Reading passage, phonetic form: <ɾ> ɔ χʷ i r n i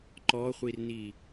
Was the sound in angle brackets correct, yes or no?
no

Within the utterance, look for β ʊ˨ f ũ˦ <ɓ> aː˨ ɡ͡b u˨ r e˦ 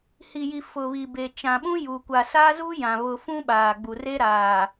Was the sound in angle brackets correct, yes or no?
yes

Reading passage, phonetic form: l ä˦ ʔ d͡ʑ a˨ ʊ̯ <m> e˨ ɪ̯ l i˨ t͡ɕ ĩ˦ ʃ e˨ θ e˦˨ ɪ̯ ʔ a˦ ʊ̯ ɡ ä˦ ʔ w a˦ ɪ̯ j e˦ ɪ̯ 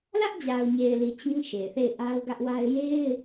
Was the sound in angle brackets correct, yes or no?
no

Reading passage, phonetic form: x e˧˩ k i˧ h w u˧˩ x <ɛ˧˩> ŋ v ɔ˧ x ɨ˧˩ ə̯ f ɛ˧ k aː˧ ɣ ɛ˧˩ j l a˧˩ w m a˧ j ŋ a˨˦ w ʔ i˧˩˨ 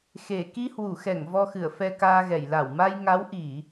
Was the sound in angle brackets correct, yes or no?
yes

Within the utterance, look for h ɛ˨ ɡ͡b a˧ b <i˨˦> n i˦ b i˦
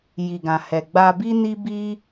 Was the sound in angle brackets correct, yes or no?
no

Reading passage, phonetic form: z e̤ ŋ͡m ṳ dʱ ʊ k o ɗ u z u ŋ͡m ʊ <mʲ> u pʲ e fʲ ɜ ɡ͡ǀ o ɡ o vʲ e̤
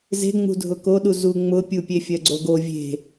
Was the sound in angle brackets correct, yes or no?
no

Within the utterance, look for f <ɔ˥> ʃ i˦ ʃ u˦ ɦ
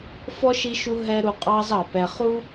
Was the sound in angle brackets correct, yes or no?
yes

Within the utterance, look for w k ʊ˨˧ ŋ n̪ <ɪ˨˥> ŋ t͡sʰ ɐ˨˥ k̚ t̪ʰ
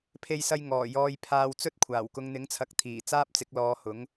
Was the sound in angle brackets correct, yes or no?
yes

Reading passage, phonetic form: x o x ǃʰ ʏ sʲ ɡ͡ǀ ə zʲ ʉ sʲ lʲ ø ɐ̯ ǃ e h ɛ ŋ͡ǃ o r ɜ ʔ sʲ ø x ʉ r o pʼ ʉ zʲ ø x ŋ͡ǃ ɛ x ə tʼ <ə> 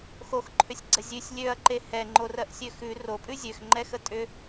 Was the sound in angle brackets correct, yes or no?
no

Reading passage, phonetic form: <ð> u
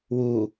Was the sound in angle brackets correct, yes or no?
no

